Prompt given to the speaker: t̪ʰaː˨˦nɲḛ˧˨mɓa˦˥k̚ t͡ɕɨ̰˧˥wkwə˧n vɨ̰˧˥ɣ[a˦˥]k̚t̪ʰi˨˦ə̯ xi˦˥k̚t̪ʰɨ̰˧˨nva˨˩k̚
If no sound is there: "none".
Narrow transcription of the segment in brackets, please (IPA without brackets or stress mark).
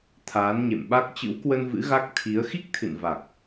a˦˥